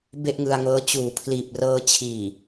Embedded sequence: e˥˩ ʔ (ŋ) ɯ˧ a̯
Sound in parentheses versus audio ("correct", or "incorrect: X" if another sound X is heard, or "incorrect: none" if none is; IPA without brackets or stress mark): correct